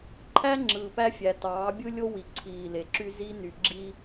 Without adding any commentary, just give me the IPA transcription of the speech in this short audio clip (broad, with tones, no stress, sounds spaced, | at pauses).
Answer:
ǃʰ æ˦ ŋ͡ǁ ɯː˨ p æ˦ fʲ æ˨ t ɑː˨˦ bʲ ɯ˦ lʲ o˦ w i˨ ǀʰ iː˨ l e˨ ǁ y˦ z i˦ n y˨ ɡ͡ǁ i˦